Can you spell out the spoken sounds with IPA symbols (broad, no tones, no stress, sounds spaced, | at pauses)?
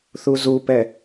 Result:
θ u z u p ɛ